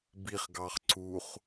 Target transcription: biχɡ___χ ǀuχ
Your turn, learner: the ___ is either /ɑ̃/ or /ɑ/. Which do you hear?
ɑ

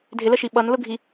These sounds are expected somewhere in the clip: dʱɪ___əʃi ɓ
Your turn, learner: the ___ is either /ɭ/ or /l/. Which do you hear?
l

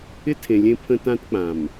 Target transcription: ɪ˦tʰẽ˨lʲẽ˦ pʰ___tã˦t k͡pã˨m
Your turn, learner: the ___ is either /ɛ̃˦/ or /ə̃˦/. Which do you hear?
ə̃˦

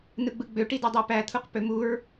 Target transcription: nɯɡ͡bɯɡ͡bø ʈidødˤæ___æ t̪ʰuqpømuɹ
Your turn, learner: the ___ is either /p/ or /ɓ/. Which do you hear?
p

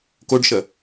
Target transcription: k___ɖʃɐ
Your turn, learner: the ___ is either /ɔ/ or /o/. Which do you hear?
o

